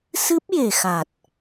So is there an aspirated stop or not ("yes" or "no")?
no